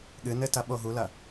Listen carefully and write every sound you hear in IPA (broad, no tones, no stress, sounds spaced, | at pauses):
ɠ ɨ n ɘ t ɐ ɓ o ɦ u l ɐ